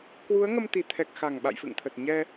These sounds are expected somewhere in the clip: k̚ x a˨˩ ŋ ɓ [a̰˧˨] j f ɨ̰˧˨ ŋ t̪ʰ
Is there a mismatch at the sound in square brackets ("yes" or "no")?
no